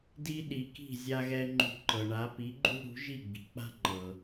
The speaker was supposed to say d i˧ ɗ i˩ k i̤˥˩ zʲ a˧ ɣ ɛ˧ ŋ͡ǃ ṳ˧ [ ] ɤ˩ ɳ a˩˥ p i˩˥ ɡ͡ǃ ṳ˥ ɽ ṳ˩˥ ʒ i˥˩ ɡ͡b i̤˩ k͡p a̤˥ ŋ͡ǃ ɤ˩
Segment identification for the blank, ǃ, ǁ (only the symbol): ǃ